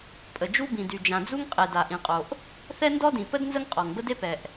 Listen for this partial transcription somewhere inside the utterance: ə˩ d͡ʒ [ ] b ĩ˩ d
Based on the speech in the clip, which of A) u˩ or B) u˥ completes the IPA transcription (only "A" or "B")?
B